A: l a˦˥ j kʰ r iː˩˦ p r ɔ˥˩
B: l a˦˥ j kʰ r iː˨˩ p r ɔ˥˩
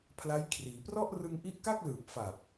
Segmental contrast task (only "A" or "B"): A